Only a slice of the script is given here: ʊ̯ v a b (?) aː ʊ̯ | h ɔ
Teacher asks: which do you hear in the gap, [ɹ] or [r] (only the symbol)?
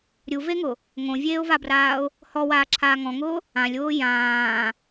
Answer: r